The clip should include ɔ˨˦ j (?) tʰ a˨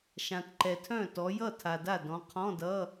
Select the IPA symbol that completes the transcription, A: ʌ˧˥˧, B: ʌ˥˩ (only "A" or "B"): B